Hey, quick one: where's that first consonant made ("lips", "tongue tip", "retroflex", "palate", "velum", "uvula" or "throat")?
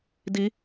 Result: tongue tip